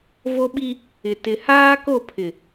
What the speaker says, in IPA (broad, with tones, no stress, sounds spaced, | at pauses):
v o˦ ɓ i˦ | ɪ˨ t ɪ˨ h aː˦ k o˦˨ pʰ ɪ˨